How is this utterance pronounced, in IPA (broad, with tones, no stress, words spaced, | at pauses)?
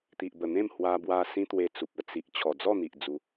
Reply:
t̪i˨ʔbə˨˩n̪ẽ˥˧m hwa˧bwa˧ sĩ˦t̪we˧t͡su˨p̚ ə˥˧t͡si˨ʔ t͡ɕʰɔ˨˩ d͡zɔ˥˧n̪i˨ʔd͡zu˨˦